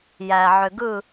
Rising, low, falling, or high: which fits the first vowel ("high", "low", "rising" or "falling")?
low